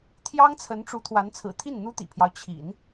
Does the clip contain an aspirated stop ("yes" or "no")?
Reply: yes